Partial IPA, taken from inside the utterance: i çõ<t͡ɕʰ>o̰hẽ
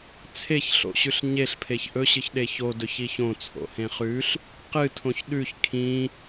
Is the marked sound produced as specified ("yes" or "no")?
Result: no